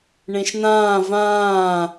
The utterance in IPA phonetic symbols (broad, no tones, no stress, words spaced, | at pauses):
ɳẽʃnãː vãː